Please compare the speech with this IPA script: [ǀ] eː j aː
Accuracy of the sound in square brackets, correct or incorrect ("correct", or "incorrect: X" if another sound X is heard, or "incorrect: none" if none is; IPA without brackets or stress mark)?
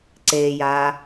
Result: correct